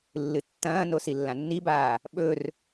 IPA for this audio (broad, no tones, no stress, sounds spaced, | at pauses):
lː ɨ tː ɐ̃ː n o s i lː ã nː i b aː | ɓ ɵ r